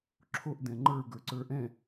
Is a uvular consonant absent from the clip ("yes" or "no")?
yes